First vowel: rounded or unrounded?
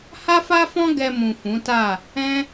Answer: unrounded